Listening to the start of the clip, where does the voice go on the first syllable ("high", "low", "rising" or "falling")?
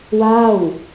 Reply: falling